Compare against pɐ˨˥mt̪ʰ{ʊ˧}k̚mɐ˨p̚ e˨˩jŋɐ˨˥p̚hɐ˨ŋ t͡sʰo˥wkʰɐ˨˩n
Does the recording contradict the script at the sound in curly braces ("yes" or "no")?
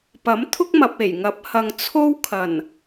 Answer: yes